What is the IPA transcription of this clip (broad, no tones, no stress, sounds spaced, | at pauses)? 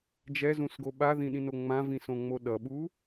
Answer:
d͡ʒ ɛ z ũ s ɡ o ɓ a ð ĩ ɗ ĩ n o ŋ͡m ã v ĩ s õ ŋ͡m o ɗ ʌ ɓ u